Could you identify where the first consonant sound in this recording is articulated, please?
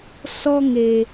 alveolar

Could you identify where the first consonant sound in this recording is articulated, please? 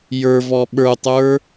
palatal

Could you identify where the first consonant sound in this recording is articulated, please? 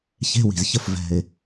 palatal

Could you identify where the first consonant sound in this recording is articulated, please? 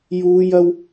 palatal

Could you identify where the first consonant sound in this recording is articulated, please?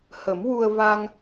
glottal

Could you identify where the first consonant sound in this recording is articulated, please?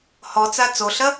glottal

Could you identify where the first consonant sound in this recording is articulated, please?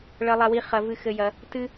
retroflex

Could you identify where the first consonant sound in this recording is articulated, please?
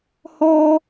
glottal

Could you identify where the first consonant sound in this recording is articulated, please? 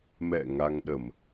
labial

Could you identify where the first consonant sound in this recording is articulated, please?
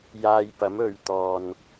palatal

